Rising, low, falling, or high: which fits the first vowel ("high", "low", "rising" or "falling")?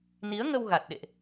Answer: rising